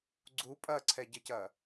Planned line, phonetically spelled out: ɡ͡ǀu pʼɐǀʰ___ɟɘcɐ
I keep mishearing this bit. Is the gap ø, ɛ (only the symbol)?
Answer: ɛ